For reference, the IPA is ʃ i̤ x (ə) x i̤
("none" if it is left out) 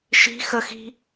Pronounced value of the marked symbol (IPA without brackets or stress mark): ə